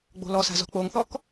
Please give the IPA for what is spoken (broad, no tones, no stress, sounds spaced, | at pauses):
ɡ͡b o̤ l ɔ s a̤ z ɔ̤ k͡p o ŋ θ ɔ k